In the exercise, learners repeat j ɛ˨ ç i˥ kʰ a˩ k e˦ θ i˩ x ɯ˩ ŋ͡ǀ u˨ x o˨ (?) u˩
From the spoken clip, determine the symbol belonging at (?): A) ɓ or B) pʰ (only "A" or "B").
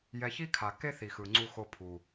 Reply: B